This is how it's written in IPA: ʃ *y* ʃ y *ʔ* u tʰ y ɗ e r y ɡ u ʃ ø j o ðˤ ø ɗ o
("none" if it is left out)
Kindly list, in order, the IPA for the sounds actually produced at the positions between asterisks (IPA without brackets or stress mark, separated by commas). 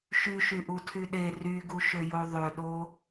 y, ʔ